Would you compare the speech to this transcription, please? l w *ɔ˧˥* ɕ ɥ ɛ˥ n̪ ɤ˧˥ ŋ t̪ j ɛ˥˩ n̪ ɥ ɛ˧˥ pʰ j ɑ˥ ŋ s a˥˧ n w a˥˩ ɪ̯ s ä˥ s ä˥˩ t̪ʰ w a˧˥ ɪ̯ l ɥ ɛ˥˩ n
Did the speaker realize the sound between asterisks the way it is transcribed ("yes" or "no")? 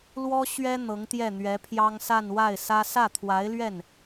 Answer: no